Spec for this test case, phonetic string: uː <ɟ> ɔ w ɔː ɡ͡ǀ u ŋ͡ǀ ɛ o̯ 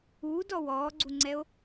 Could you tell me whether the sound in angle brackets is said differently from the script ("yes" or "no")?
yes